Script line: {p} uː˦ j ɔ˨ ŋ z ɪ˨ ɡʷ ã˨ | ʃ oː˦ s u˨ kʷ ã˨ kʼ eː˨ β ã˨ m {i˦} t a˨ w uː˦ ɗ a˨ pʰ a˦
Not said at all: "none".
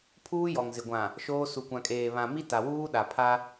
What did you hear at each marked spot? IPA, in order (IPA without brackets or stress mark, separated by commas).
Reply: pʰ, i˦